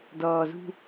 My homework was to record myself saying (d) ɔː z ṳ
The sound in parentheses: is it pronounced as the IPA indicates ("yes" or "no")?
yes